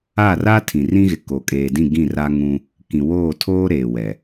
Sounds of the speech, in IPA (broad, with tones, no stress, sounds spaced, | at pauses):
a˦˨ r a˦ tʰ ĩ˨ r ĩ˦ ɣ ɪ˨ k o˨ kʼ eː˨ d ĩ˦˨ ɡ ĩ˦˨ r a˦ ŋ ũ˦ | k ĩ˨ w oː˦˨ tʰ oː˦ ɾ eː˨ w ɛ˨